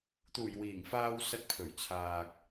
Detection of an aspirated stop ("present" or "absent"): present